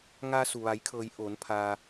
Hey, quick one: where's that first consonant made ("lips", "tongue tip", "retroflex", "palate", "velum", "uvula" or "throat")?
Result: velum